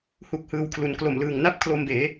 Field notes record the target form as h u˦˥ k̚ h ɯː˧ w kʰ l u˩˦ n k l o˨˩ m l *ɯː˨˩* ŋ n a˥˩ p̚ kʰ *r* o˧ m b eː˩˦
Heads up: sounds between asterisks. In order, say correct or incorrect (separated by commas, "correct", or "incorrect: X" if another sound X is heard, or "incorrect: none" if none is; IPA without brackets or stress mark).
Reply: correct, incorrect: l